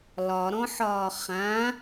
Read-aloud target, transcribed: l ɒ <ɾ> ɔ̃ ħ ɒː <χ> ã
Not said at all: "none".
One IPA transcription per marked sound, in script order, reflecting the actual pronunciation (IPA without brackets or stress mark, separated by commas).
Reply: ɾ, χ